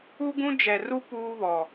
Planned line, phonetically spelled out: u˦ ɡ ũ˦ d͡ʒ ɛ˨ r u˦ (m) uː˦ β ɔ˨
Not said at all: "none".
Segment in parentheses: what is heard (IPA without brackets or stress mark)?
p